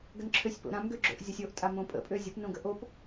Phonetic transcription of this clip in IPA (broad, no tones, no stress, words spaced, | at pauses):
ɡənǁʰøsʲpo̰ɾãm ɡøɡ͡ǁo̰ʔ zʲɔsʲoʔtʼa mõpʼə̰ pʼøzʲəpnõ ɡəʔop